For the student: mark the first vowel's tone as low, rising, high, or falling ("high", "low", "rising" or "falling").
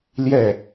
falling